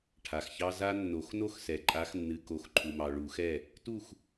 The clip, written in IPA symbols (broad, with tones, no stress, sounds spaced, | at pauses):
ʈʰ a˨ x ç ɑ˦ z a˦ nː o˨˩˦ x n o˦ x s ɛ˨ ǃʼ a˨˦ x nː ɨ˨ k o˨˩˦ x ǃʰ u˨ m ɑ˨ ɭ u˨˩˦ x ɛ˦˨ | t u˦˨ x